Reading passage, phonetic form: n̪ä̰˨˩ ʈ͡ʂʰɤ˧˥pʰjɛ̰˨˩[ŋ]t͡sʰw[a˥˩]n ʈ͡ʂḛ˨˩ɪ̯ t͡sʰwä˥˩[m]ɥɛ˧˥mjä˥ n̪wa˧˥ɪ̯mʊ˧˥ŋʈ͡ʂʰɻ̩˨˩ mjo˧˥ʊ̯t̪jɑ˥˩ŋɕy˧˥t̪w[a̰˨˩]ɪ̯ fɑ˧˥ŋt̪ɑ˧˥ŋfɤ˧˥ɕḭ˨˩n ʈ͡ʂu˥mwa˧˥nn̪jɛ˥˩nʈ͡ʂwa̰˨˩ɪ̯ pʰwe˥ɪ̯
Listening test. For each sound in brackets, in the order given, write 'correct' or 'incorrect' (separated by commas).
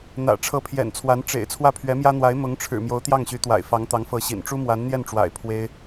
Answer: incorrect, incorrect, incorrect, correct